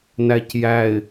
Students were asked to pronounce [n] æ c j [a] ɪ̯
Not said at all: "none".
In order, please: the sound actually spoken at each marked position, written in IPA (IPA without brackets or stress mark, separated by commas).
n, æ